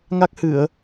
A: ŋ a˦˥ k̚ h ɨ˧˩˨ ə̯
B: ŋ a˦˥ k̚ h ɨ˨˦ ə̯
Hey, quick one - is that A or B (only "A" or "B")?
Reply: A